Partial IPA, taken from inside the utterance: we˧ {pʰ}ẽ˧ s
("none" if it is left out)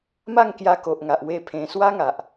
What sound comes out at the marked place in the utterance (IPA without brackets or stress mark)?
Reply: pʰ